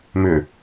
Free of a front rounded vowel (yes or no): no